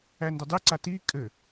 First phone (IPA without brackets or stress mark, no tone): æ